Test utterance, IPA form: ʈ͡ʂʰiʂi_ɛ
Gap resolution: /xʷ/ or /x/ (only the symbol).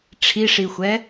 xʷ